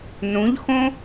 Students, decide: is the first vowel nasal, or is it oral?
nasal